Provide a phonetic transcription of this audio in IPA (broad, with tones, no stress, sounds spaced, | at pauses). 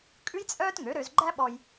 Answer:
kʼ ʉ˥ j t͡sʼ œː˥ t ŋ ø˩˥ ɾ ø˧ z ɡ͡ǃ æ˥ ɓ ɔ˧ j